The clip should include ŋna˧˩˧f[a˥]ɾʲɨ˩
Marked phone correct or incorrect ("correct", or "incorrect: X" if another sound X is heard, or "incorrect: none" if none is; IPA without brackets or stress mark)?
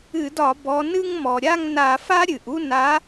correct